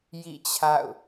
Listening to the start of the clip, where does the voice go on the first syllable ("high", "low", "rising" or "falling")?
falling